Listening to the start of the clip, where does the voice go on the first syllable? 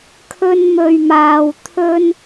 high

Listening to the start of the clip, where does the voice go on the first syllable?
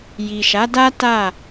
low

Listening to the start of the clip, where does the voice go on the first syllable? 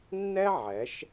high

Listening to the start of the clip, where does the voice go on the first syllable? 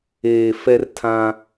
low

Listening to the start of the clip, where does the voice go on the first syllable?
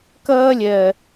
high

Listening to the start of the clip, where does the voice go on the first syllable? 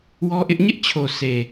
high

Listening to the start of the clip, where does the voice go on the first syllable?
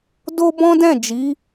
high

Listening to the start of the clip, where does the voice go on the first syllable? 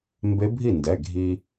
rising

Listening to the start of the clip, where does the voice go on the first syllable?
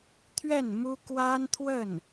falling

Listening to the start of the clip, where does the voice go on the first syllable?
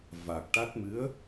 low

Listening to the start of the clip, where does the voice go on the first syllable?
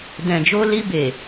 low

